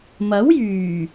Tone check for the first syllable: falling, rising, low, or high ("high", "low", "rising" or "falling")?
rising